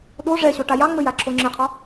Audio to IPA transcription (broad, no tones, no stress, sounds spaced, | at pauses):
ɗ o ʐ ɛ ɕ o ʈ a j ɑ ŋ͡m ɘ j a ǁʰ o ŋ͡ǁ ɘ qʰ ɒ